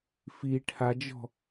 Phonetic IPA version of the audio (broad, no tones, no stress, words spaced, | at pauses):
fi ʈʰad͡ʒɔ̤